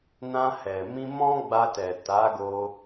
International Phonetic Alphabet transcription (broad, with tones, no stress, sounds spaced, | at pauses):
n ã˧ h ɛ˨ m ĩ˧ m ɔ̃˦ ɡ͡b a˧ t ɛ˨ t a˨˦ ɡ o˧